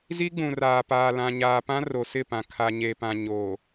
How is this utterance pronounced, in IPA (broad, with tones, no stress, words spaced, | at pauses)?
zi˦ɡ͡bũ˨raː˨paː˨ lã˨ɲaː˨pã˦ ro˨sɪ˦˨pã˨ kʰa˨ɲe˨pã˨ ɲoː˨